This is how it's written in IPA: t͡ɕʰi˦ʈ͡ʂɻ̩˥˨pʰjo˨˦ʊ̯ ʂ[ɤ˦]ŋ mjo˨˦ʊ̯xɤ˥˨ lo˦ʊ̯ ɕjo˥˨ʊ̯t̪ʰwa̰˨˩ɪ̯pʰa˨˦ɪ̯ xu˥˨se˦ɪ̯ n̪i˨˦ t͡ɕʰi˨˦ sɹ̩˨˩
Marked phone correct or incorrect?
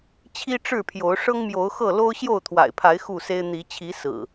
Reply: correct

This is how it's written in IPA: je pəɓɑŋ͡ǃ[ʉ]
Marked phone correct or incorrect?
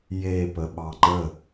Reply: incorrect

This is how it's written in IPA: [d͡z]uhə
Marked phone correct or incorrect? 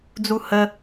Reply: correct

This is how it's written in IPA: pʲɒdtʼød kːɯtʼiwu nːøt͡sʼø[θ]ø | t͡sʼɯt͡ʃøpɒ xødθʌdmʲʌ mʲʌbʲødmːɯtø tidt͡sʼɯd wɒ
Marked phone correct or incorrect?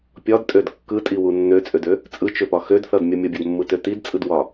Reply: incorrect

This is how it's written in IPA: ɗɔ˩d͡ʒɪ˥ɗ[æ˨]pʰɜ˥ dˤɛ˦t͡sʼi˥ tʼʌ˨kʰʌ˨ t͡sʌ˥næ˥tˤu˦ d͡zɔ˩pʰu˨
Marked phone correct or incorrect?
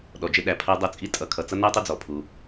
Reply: incorrect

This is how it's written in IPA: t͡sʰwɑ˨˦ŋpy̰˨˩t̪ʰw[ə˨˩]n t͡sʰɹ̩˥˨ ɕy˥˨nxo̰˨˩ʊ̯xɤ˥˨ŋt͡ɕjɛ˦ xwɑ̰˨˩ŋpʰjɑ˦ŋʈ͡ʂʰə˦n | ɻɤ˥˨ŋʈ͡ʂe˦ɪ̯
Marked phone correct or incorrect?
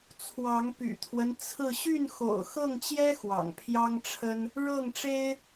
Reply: incorrect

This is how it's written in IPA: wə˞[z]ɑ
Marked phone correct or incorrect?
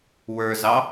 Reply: correct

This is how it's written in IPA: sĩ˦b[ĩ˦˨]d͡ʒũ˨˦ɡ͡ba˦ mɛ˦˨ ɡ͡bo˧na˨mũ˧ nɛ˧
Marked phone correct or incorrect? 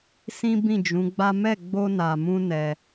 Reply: correct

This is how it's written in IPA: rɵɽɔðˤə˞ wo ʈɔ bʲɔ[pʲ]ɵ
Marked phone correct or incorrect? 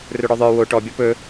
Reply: incorrect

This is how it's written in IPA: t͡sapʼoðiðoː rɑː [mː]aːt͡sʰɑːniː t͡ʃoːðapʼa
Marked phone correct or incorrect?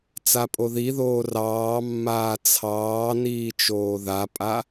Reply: correct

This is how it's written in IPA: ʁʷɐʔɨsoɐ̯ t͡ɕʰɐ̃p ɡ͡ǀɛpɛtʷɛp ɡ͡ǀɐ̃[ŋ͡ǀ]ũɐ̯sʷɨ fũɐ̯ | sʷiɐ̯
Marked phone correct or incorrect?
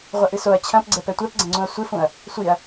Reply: correct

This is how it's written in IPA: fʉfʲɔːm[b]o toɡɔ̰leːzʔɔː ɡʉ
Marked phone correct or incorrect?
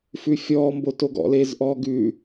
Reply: correct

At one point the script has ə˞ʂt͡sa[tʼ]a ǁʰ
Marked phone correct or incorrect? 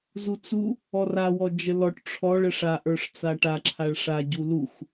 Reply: incorrect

